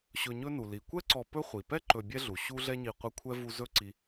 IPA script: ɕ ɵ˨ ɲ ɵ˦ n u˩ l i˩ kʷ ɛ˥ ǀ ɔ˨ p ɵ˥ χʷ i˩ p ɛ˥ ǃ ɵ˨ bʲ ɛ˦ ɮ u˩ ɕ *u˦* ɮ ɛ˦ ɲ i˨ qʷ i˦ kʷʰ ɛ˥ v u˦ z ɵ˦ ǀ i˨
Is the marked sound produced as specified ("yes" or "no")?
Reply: yes